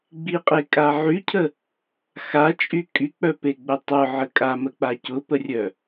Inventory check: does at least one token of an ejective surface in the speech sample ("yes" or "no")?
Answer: yes